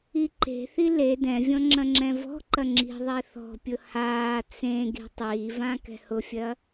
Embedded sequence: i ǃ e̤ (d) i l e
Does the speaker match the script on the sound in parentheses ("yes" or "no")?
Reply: no